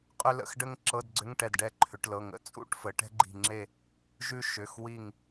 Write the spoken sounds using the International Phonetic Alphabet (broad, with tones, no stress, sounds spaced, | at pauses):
qʼ ʏ˥ l ə̰˧˥˧ x ɖ ə˥ ŋ ǁ ɤ˧˥˧ d ɡ͡ǀ ʏ˧˥˧ ŋ ʈ ɛ˧˩ d ɖ ɛ˥˨ ǃʰ ʏ˩˧ ʈ l ɤ˩˧˩ ŋ ə̰˧˥˧ t͡sʼ ṵ˥˨ ʈ f ə˩˧ ʈ ɛ̤˥ ɡ͡ǃ i̤˧˩ ŋ͡ǁ e˥˨ | ʒ ʉ˥ ʃ ʏ˩˧˩ x w i˧˩ ŋ